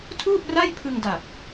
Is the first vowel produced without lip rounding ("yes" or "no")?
no